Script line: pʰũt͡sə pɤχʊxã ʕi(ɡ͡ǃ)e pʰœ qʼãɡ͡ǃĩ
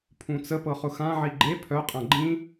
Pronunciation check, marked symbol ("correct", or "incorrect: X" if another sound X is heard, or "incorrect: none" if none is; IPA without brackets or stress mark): correct